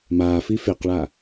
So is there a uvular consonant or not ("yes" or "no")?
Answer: yes